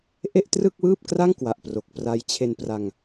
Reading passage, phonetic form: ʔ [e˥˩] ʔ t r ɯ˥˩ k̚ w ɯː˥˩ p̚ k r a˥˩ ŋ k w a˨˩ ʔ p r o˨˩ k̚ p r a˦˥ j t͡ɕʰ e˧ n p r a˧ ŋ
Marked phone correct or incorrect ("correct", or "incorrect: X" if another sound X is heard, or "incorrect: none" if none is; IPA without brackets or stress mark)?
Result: correct